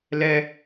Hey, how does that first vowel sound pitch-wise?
high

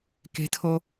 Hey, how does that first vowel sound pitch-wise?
high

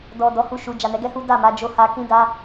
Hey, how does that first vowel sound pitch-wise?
low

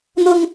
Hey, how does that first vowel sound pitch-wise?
low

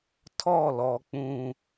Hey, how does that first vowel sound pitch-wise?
falling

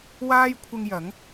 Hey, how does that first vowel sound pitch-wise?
high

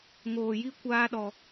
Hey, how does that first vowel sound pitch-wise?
low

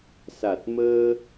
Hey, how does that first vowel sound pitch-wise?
low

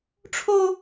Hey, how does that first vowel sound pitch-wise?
high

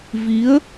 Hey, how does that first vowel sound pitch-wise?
rising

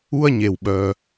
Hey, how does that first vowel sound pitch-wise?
high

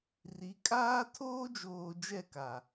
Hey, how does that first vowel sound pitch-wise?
rising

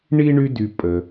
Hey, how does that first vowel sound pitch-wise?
high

